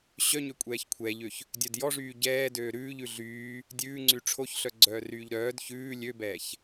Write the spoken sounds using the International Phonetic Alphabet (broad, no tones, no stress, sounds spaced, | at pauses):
ɕ œ ɲ ø kʷʼ ɛː ç kʷʰ ɛː ʎ ø ç | dʲ œ d j ɔ ʐ yː ɟ ɛː d øː ɾ ʉː ʎ ʉ ɮ yː | dʲ ʉː ŋ͡ǀ y ʈ͡ʂʰ o ç ɬ œ ɡ͡ǀ œː r yː ʎ ɾ œː d ç ʉː lʲ ø b ɛː ç